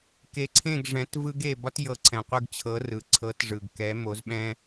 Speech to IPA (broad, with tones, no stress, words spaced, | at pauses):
ke˨˥ǀʰẽ˥˨ɡ ʐɛ̃˨˥tvɯ˥ɡe˥˨ bɒ˥tjɤ˨˥ ǀʰɛ̃˩qʷɯ˥˨ɡt͡ɕʰɤ˨˥ rɯ˩ǀʰɤ˨˥tʐɯ˩ɡ kɛ˨˥mo˨˥zɓɛ̃˥